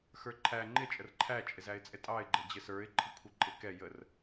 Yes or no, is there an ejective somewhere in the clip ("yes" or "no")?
yes